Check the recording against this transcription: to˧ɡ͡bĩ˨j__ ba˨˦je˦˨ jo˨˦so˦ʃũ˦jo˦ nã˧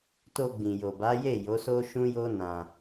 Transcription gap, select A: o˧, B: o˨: B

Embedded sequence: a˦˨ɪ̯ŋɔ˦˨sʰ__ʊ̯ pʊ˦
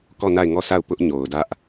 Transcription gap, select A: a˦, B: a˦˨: B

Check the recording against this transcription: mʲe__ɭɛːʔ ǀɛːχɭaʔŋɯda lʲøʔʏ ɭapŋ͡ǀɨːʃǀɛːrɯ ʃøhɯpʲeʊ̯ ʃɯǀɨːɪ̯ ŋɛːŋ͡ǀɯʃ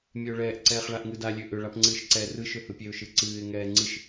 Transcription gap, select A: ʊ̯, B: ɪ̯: A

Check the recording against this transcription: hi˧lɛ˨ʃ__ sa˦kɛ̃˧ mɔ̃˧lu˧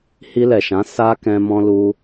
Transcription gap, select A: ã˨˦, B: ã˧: A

